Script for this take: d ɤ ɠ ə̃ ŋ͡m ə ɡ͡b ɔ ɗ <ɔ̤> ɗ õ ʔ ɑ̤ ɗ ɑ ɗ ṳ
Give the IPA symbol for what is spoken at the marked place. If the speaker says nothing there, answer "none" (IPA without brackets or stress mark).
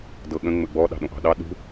ɑ̤